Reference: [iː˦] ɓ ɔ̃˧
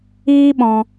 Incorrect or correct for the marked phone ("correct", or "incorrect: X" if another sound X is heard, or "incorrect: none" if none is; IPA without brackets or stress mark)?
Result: correct